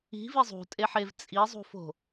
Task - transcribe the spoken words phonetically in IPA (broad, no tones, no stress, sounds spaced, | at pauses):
i̤ v i zˤ ṳ tʼ e ħ e v t͡sʼ i zˤ ṳ f o̤